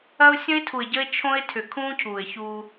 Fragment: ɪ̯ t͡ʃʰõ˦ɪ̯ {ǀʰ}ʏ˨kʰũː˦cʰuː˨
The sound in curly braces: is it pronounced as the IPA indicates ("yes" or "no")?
no